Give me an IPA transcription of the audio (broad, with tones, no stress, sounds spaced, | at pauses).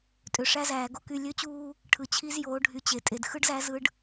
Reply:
tʼ ø˨ ʂ æ˦ z æː˨ ɡ o˦ k y˨ lʲ ø˦ t͡ɕ uː˦ | ʈʰ ɯ˨ t͡ɕʰ i˦ z j oː˨˦ ɖʱ y˨ t͡ɕ e˨ tʼ e˨ d x ɯ˦ ɖ z æ˦ z ɯ˦ ɖ